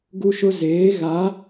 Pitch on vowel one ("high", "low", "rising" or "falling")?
high